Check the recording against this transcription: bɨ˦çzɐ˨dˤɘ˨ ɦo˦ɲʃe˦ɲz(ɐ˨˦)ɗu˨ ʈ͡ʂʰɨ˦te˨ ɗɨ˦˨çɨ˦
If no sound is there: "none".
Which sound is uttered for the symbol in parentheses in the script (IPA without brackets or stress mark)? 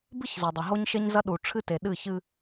ɐ˦